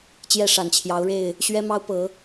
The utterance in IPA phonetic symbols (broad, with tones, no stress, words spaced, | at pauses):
t͡ɕjɛ˥˨ʂa˨˩nt͡ɕʰjɑ˨˦ʊ̯ɻe˥˨ɪ̯ | ɕɥɛ˦mɑ˦ʊ̯ pɤ˨˦